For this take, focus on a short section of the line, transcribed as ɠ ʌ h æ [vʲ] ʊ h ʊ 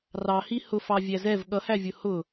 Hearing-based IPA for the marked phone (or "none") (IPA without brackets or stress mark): vʲ